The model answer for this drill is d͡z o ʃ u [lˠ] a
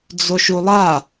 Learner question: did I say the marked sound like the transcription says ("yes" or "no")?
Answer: yes